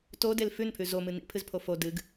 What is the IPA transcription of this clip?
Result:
todel fʉnpʰʉ zomɨ nḭpʰɨzpʰo fo dɨɡ

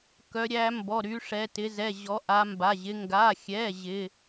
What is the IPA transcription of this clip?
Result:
kœ˨˦ ɾʲæ˨˦ mbɔ˩˧˩ɾy˨˦ʂɛ˩˧˩ tɪ˨˦zɛ˩˧˩ ʑɔ˨˦ʔa˨˦mba˩˧˩ʑɪ˨˦ ŋɡa˩˧˩xʲɛ˩˧˩ ʑɪ˩˧˩

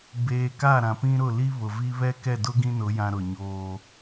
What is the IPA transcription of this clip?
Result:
beː˨ka˦˨ ɾã˨pĩ˦ɾʊ˦˨ li˦ βʊ˨vi˦ βɛ˦kɛ˦˨dʊ˦ ɡĩ˦nʊ˨˦jã˨ ɾʊ˨ɲoː˦

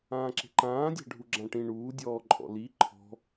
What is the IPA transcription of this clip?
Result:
ãːǁe̤ǃãːdʲa̤ ɖʱuɡ͡ǁãʈĩ ɳuːdʲɔːǃʼɔ̰ li ǃʰɔ̤

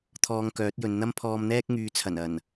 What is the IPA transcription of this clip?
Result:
t̪ʰɔː˧ŋkœː˨˥t̚jɵ˨˧n n̪ɐ˥mpʰɔː˧mn̪ɛː˥k̚ ŋyː˨˧t͡sʰɐ˨˩n ɐ˨˩n

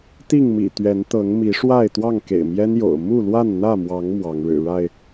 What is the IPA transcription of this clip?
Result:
t̪i˥˨ŋmḭ˨˩ t̪ɥɛ˨˦nt̪ɤ˨˦ŋ mi˨˦ʂwa˥˨ɪ̯ t̪wɑ˥˨ŋkḛ˨˩ɪ̯mjɛ˦njo̰˨˩ʊ̯ mu˥˨lwa˥˨nn̪ä˥˨mwɑ˨˦ŋ mwɑ˨˦ŋɻɻ̩˨˩ɻa˥˨ɪ̯

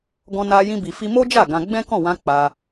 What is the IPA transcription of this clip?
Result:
ɡɔ̃˧na˧ jĩ˦bi˧fi˦ mo˦d͡ʒa˦˨ ɡã˧ ɡ͡bɛ̃˦kɔ̃˦˨wã˧ k͡pa˧

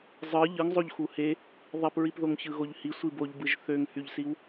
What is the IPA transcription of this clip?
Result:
zˤɯ ʎɯŋ zˤoʎxuhe | ðˤipɹipðoŋ çɯɣoʎhi sʷiboʎbɯʒ θøŋhyʎsiw

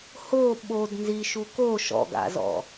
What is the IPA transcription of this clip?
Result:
ho ɓod nziʃu ko ʃɔ̰ɡa̰zɔ̰

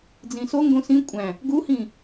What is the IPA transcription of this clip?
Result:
d͡zĩso ŋɡõsĩ kʷʼæ̃ | ɡuhĩ

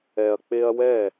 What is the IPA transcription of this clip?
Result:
ɛ˩ɐ̯k͡pe˧ɐ̯ wɛ˥˩

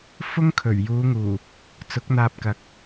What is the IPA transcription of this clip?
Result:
fʊ˥ŋkʰɵ˨˩ɥjuː˨˧ŋuː˨˩ | t͡sʊ˨˥k̚n̪aː˧p̚kɐ˨˥k̚

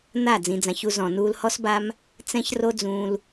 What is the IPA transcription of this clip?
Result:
n̪a˦˨ d͡zĩ˨d͡zã˨çu˧ zɔ̃˨nuː˧lhɔ˦sba˦m | t͡sɛ̃˦ç ro˦d͡zũː˧l

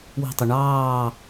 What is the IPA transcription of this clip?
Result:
wi̤tˤu ɳɑː

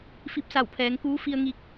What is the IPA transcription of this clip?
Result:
fi˧p̚sa˧˩wpʰɛː˩˧ŋkuː˧˥ fi˧ə̯ ŋi˧k̚

